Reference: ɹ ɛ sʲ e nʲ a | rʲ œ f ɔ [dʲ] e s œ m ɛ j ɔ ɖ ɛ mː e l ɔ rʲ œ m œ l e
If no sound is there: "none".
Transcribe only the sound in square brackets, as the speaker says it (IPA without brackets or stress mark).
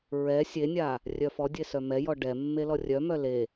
dʲ